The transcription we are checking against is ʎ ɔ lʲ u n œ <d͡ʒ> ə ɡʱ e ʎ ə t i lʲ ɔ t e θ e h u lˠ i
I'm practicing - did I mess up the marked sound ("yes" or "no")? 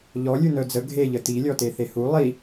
yes